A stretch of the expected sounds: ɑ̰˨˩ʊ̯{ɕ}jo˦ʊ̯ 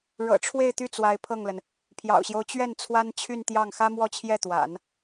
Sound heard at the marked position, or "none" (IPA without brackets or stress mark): ɕ